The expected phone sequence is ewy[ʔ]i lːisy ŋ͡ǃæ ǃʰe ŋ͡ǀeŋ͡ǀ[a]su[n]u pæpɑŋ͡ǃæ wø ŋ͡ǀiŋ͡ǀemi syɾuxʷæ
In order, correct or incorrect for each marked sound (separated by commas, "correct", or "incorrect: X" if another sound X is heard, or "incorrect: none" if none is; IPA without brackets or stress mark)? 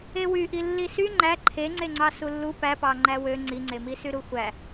correct, incorrect: ɑ, incorrect: lː